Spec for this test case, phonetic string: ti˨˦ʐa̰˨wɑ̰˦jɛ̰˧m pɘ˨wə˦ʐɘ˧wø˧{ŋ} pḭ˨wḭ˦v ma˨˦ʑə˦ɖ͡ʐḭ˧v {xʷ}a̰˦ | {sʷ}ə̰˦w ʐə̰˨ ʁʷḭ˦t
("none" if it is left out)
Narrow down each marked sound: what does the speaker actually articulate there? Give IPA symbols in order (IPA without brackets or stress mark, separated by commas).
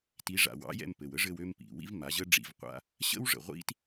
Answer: m, qʷ, ɕ